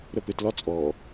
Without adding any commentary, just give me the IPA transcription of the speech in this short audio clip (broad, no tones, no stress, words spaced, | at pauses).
ɾəpɪtlɒ t͡sʼɔ